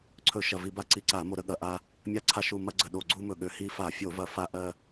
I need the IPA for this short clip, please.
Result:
ǀʰ ɵ˧˩˧ ʃ ɐ˨˩ v i˧˩˧ b a˧ ǀ i˧˩˧ ǀ a˧˩˧ m o˧˩˧ ɾ ə˧˩˧ ɠ ɐ˨˩ ʔ a˧ | mʲ a˧ ǀʰ a˧˩˧ ʃ u˨˩ m ɐ˧ ɡ͡ǀ ə˨˩ ɗ o˨˩ ɡ͡ǀ u˧ m ɵ˨˩ ɠ ø˨˩ h i˧ f a˧˩˧ fʲ o˧˩˧ v ɐ˧˩˧ f a˧ ʔ ɜ˧

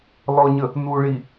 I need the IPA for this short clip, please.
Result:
l ɔ ɲ ə | n u ɭ i

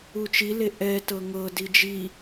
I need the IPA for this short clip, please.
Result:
u t͡ʃ i l e ʔ ɛ t ɤ ŋ ɤ d i d͡ʒ i

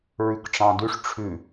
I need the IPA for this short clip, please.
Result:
ɹ ʉ k ʈ͡ʂ ɑ̃ d ʉ ʂ ʈ͡ʂʰ ʉ

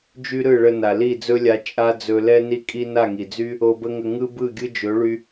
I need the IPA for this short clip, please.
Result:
d͡ʒ y˦ ɾ ɯ˦˨ ɭ ə˧ n a˨ l i˦˨ d͡z ɵ˦ lʲ a˧ t͡ʃʼ a˦ d͡z ɵ˧ l ɛ˦ n i˦ kʼ i˦ n a˦˨ ŋ i˨ d͡z y˦ | o˧ b ə˦ ŋ ə˧ ŋ ɯ˦ b ɯ˦˨ ɡʲ ɯ˦ d͡ʒ ɵ˨˦ ɭ y˧

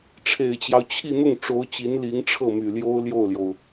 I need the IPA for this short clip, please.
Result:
ʈ͡ʂʰ e˨˩ ɪ̯ t͡ɕ j ɑ˦ ʊ̯ t͡ɕʰ i˥˧ n̪ ʊ˥˩ ŋ ʈ͡ʂ o˧˥ ʊ̯ t͡ɕ i˧˥ n l i˧˥ ŋ ʈ͡ʂʰ ɤ˥˩ m y˨˩ l j o˥ ʊ̯ l j o˥˩ ʊ̯ l j o˩ ʊ̯

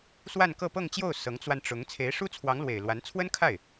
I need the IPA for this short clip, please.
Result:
s w a˥˧ n k ɤ˥˧ p ɤ˥˧ ŋ t͡ɕ j o˥˩ ʊ̯ s ɤ˧˥ ŋ t͡s w a˧ n ʈ͡ʂ ʊ˧˥ ŋ t͡sʰ e˧˥ ɪ̯ ʂ u˥ t͡sʰ w ɑ˧˥ ŋ l w e˨˩ ɪ̯ l w a˧˥ n t͡sʰ w ə˥ n kʰ a˥˩ ɪ̯

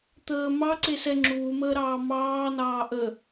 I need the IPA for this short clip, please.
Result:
t̪ əː m ɑ ǀ e s ɛ ŋ͡ǁ uː m əː ɾ ɑː m ɑː n ɑː ʔ ə

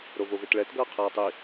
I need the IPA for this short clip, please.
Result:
ɾ o v o v e t ɭ ɛ t ɡ ʌː qʰ aː tˤ i

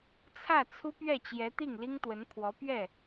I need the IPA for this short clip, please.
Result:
t͡sʰ ä˥˩ t͡sʰ u˥ p ɥ ɛ˥˩ t͡ɕ j ɛ˧˥ t̪ i˥˩ ŋ l i˥ ŋ t̪ w ə˧˥ n pʰ w ɔ˧˥ p ɥ ɛ˥˩

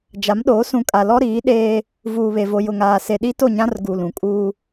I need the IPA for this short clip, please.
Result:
d͡ʒ a˨˦ m ɗ oː˨˦ s ũ˨ kʼ a˨ l ɔ˦ ɾ iː˨˦ ɗ eː˦ | v uː˨ β e˨ v o˨ j ʊ˨ ŋ aː˨ s e˨ ɗ i˦ t o˦˨ ɲ ã˦ r ɡ u˨ l ũ˨ kʼ uː˦

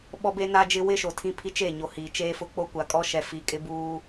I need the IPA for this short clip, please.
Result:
ɓ ɔ˦ b e˦ n a˦ d͡ʒ ɪ˦ w ɪ˦ ʃ o˨ tʰ ĩ˦ pʰ i˦ t͡ʃ e˦˨ ɲ o˨ h iː˨ t͡ʃ eː˦ f ʊ˦ k͡p o˦ kʷ a˨ kʼ ɔ˦ ʃ ɛ˨ f i˨ kʼ ɪ˦ b uː˦

